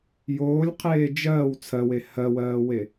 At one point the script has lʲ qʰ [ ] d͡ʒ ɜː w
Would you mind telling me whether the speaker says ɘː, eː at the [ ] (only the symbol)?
eː